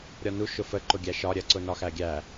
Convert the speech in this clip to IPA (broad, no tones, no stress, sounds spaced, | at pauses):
ɾʲ ɒ n u ʃ ʊ f ə ǃ ʊ ɡʲ æ ʃ ɒ ɾʲ ɜ ǀ ʊ n ɒ x æ ɡʲ æ